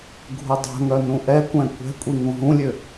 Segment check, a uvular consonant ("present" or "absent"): absent